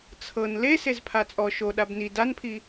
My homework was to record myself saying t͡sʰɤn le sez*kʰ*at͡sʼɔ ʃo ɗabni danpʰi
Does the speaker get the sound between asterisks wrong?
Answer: yes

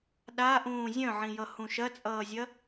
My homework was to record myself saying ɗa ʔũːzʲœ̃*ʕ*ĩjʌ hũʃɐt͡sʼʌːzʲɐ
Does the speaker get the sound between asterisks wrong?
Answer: no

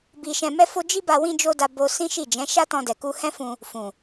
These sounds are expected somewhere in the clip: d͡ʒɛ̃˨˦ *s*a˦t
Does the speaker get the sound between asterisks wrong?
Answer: yes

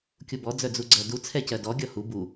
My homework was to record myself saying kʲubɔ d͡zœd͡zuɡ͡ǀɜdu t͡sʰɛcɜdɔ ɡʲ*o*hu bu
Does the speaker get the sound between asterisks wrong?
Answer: yes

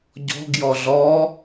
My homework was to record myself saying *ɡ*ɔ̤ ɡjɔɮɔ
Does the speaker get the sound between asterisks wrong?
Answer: yes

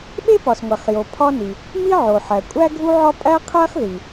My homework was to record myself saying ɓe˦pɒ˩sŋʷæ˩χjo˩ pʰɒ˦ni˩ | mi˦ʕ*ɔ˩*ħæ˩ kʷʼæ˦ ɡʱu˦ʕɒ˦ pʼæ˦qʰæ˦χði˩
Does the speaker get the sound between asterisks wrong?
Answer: yes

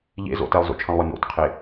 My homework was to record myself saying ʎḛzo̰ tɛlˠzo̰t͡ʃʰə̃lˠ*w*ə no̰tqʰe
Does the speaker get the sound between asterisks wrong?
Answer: no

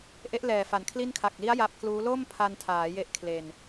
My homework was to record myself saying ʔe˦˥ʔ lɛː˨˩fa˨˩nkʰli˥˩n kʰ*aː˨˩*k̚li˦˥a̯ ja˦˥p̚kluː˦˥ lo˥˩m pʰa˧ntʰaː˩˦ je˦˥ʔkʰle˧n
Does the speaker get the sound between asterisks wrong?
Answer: yes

